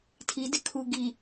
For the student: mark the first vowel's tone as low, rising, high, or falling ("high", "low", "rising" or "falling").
rising